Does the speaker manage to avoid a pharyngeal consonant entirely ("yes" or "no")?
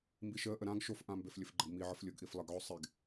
no